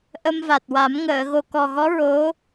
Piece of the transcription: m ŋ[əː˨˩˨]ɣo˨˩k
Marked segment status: correct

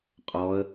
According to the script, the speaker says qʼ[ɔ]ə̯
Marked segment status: correct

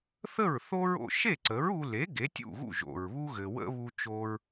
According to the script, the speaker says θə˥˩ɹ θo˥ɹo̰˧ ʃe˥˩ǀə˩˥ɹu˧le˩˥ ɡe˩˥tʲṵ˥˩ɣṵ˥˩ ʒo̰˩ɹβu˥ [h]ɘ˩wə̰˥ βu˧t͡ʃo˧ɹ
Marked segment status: incorrect: ɣ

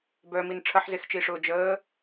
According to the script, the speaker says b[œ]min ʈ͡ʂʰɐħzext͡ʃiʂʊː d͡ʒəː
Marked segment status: correct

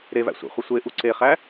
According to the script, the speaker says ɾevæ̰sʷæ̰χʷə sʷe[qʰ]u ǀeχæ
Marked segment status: incorrect: ʔ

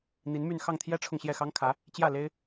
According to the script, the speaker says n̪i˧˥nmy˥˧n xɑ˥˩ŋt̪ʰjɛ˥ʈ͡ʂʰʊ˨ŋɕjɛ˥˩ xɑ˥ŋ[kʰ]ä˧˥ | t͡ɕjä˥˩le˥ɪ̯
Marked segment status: correct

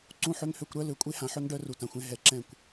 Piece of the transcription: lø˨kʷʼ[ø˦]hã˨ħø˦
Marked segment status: incorrect: e˦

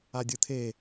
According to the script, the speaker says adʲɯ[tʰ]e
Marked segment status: correct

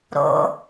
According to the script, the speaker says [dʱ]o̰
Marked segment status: incorrect: ɾ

